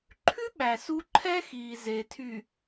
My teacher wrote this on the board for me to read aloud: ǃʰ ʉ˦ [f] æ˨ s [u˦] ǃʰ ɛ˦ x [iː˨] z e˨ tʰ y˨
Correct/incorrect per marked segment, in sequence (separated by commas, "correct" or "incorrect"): incorrect, correct, correct